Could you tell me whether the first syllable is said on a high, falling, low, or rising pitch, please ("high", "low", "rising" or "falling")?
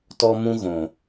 high